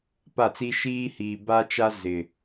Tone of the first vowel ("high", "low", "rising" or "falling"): falling